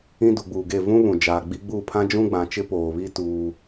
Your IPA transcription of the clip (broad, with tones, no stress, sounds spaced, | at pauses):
ĩ˦ d u˨ ɡ͡b uː˨ ɡ e˦˨ v ũ˦ β ũ˨ d͡ʒ aː˨ ɡ͡b i˦ ɡ͡b uː˦˨ pʰ ã˦ d͡ʒ ũ˦ ɡ͡b ã˨ t͡ʃ ɪ˦ p oː˨ β i˦ t uː˦